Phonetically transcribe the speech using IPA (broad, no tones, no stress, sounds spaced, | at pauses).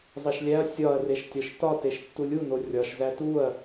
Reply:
zˤ i ʃ lʲ æ ɐ̯ sʲ ɒ ɐ̯ r e ʃ tʲ ɒ ʃ t ɒ t e ʃ tː u lʲ u n o rʲ ɒ ʃ z æ t u ɐ̯